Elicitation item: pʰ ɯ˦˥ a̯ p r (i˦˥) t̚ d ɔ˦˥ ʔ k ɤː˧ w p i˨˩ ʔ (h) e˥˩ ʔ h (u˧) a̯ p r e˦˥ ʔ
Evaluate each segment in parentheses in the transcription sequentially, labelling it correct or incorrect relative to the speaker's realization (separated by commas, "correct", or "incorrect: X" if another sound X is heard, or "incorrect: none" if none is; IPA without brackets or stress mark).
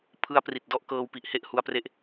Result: incorrect: i˨˩, correct, correct